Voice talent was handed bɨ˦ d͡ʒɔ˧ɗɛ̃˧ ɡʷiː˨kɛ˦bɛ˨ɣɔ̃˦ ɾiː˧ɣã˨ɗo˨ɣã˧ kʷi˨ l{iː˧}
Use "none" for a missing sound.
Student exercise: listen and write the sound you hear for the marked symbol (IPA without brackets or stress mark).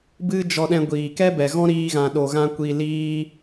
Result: iː˧